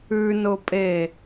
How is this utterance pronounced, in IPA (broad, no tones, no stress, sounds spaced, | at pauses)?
ʉ n ʊ pʼ e